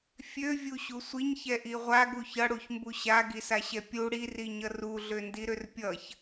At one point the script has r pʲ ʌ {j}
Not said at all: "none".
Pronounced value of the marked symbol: ç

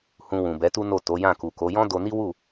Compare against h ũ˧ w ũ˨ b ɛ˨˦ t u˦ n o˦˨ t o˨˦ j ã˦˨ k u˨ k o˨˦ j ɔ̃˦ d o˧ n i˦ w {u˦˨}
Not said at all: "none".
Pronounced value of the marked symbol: u˦˨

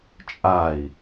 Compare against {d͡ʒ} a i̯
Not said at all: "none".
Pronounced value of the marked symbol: t͡ʃʼ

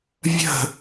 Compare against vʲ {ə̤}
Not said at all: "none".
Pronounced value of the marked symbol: ə̤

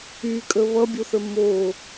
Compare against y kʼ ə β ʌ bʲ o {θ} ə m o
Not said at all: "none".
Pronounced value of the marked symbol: θ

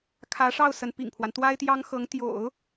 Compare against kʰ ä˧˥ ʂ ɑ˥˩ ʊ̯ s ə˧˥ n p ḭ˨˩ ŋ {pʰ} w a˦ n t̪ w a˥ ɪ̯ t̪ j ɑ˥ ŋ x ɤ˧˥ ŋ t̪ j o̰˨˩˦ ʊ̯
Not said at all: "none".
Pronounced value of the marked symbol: pʰ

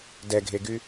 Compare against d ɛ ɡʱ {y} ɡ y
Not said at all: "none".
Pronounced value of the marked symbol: e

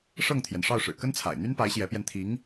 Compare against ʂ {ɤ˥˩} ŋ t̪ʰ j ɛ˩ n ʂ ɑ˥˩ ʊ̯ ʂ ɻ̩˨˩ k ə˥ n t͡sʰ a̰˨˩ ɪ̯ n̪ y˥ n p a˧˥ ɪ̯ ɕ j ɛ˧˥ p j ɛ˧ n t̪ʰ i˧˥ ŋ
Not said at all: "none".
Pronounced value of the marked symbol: ɤ˥˩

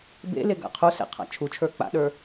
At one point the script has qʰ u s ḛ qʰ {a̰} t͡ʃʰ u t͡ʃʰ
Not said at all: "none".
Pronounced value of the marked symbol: a̰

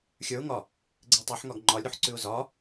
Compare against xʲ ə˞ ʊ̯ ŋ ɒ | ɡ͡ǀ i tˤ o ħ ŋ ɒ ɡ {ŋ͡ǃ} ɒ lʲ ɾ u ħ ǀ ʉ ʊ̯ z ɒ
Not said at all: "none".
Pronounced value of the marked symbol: ŋ͡ǃ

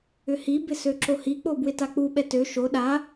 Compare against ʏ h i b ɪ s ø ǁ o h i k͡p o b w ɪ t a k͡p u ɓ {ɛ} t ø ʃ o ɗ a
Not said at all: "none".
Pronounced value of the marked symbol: ɛ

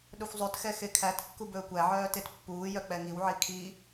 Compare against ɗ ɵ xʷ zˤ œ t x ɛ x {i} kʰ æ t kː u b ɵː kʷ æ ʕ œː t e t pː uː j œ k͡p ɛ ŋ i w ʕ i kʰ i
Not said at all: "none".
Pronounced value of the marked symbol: e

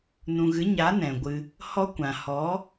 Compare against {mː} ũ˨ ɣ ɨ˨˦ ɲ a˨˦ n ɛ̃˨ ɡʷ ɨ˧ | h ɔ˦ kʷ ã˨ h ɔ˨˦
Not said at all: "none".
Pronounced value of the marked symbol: n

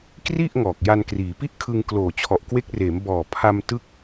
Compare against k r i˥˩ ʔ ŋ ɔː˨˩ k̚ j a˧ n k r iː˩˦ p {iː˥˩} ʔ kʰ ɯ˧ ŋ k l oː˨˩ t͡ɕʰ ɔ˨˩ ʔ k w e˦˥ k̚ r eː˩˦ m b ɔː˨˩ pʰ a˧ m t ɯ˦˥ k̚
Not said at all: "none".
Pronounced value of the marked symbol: i˥˩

